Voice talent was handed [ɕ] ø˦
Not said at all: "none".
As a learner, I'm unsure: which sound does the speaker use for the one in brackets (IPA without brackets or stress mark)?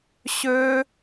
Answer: ɕ